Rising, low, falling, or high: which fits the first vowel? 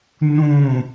falling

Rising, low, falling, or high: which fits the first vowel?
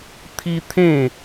high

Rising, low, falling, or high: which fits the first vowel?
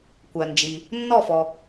low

